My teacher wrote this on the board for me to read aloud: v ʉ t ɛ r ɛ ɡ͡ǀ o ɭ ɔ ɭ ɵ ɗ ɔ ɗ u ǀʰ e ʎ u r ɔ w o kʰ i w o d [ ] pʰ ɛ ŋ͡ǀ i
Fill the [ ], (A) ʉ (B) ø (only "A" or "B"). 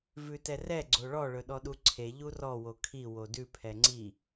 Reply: A